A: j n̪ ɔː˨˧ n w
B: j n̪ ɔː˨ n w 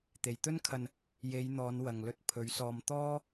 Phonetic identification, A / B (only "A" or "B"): A